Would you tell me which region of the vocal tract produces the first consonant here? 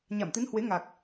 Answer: palate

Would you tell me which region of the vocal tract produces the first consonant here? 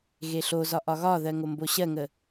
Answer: velum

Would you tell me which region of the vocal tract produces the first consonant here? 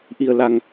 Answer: throat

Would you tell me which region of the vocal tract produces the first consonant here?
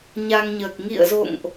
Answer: palate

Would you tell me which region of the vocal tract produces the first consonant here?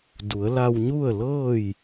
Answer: tongue tip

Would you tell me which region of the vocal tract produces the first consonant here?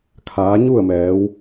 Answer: velum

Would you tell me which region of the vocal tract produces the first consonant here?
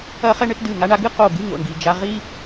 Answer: uvula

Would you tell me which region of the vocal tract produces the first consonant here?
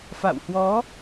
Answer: lips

